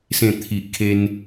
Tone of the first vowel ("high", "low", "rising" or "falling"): low